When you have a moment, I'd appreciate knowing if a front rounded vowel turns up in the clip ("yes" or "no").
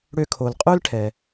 yes